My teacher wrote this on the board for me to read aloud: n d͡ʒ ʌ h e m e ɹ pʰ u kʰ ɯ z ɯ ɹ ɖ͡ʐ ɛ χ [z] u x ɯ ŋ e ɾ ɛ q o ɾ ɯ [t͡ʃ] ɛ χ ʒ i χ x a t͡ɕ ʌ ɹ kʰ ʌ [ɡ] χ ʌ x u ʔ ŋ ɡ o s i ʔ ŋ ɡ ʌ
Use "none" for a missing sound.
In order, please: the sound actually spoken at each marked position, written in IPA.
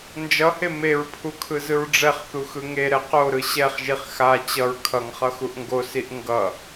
θ, ɕ, ŋ

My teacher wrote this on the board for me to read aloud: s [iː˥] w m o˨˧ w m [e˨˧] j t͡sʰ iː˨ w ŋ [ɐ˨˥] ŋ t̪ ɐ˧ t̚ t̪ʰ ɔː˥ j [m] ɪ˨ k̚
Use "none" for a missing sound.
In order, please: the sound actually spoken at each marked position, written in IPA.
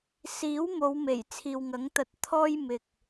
iː˨˥, e˨˩, ɐ˨˥, m

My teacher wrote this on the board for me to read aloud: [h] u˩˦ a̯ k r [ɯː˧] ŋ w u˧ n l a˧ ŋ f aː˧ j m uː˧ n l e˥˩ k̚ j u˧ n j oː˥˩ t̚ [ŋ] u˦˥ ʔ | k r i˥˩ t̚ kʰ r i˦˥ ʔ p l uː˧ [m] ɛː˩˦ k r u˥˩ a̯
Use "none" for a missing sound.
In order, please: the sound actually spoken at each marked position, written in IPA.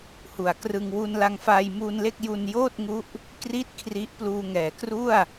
h, ɯ˧, ŋ, ŋ

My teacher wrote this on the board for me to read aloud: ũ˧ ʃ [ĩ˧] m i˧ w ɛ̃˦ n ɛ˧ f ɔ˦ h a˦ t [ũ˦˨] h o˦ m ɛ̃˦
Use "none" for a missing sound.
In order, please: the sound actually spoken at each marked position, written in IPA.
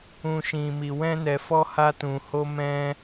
ĩ˧, ũ˧

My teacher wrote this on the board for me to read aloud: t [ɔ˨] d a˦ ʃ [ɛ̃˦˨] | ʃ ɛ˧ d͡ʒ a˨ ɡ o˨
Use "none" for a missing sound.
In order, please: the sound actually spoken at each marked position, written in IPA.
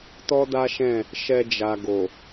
ɔ˦, ɛ̃˦˨

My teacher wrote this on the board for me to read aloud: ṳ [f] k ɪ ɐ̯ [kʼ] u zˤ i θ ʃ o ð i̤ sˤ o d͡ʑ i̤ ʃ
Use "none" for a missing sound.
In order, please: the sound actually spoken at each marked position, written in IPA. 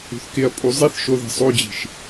θ, pʼ

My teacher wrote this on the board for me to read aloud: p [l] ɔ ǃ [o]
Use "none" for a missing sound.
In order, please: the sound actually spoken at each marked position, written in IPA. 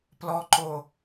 l, o

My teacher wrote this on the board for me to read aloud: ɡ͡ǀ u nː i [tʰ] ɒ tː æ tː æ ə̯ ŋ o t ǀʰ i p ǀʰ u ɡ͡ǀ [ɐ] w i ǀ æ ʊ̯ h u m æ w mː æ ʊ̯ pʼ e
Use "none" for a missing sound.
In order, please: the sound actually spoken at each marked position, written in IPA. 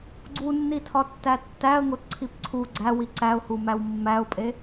tʰ, æ

